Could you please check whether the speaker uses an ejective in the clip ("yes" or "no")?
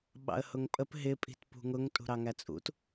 yes